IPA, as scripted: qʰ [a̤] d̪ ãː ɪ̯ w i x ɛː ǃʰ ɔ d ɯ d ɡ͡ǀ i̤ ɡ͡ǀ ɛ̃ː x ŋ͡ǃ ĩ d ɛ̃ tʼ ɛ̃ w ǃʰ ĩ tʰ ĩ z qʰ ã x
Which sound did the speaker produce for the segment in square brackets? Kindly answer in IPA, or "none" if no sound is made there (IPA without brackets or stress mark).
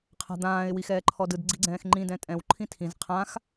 a̤